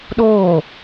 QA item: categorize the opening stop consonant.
implosive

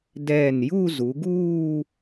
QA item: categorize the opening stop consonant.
plain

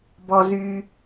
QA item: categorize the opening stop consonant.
plain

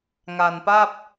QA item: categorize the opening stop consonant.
plain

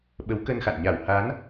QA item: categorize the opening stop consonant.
implosive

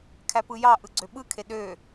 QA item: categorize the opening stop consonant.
aspirated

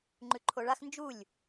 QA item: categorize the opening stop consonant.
click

